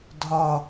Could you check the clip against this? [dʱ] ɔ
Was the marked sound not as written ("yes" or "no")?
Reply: no